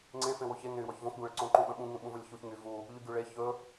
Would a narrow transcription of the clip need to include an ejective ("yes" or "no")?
no